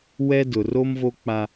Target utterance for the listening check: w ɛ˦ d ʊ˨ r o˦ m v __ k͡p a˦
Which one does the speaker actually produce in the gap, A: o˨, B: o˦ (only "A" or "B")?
B